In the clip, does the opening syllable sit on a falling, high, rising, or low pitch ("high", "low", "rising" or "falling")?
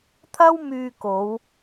high